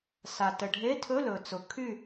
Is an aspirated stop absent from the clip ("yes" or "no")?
no